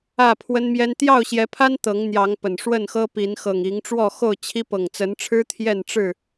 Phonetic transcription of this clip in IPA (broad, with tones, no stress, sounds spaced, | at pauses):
ä˥˨ pʰ w ə˦ n m j ɛ˦ n t̪ j ɑ˥˨ ʊ̯ ɕ j ɛ˨˦ pʰ a˦ n t̪ ɤ˨˦ ŋ n̪ j ɑ˨˦ ŋ p ə˨˩ n ʂ w ə˥˨ n x ɤ˦ p i˨˦ n x ɤ˨˩ ŋ i˨˦ ŋ ʈ͡ʂ w ɔ˥˨ x o˥˨ ʊ̯ t͡ɕʰ i˦ p ɤ˨˩ ŋ t͡s ə˨˦ n ʈ͡ʂʰ ɻ̩˦ t̪ʰ j ɛ˥˨ n ʈ͡ʂ ɻ̩˥˨